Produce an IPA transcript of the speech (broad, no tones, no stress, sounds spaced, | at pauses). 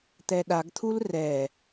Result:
t̪ ɛ ɗ a ɡ t̪ʰ u l r ɛ